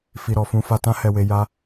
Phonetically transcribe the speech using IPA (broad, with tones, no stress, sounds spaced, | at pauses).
f i˨ ɾ ɔ˨ f ũ˧ f a˨ t ã˧ h ɛ˧ w e˧ j a˧